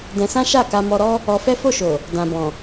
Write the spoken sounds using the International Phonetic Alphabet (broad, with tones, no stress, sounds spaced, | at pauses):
d ɛ̃˧ s ã˦ ʃ a˦˨ k a˧ m ɔ˧ ɾ ɔ˦ | ɔ˧ f ɛ˦ f o˦˨ ʃ o˨ | d ã˧ b ɔ̃˨